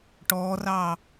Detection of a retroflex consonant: present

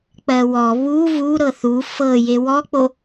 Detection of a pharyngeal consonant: absent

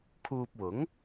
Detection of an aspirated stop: present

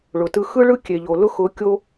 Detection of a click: absent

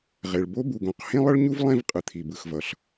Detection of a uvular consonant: present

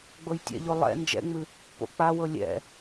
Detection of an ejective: absent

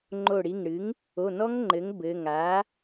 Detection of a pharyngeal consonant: absent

